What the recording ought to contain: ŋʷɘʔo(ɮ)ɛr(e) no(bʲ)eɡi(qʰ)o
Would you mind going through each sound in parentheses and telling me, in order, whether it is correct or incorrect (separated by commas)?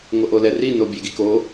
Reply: incorrect, incorrect, correct, incorrect